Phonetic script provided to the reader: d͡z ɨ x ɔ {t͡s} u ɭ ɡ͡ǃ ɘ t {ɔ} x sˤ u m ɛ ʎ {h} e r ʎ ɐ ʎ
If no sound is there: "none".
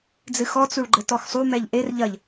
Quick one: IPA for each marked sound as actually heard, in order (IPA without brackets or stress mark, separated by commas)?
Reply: t͡s, ɔ, ʔ